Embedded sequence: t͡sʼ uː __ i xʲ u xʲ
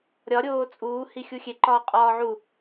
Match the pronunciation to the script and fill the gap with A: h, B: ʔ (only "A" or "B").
A